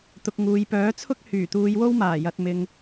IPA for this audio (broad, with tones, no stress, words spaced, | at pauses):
t̪ʊ˨k̚ ŋuː˨jpœː˨˥t͡sʰʊ˥k̚ hyː˨˩t̪uː˨˧jwo˥w maː˨˩jɐ˨t̚ mɪ˨ŋ